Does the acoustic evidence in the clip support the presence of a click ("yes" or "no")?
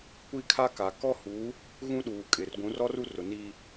no